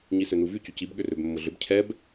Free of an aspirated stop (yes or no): no